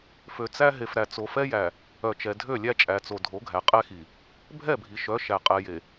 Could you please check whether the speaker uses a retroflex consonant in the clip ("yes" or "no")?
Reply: no